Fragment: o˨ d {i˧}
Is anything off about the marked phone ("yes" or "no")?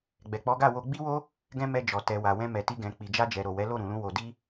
no